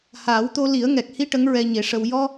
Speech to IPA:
haː˨˩˦wt̪o˧li˨˩˦ə̯ ŋɛ˨˩k̚hi˧ ʈə˧˥ŋɹɛ˧ɲe˨˩˦ʂə˧w jɔ˧

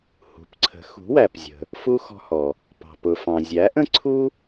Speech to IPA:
hṳ˩˥pǀʰə̤˩˥ xṳ˩˥wæ˩pzʲə̤˩ | fu˧ xɔ̤˧hɔ˩ | pɑ̤˩pʊ˩fɑ̃˩ zʲæ˩˥ʔə̃˥ǀʰu˥

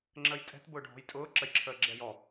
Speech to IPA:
ŋ͡ǁəjtʼɛ̤t bʊːɖʱɔ̤jtʼʊː ǁəjǁʰəːɡ͡ǁɛjɔ

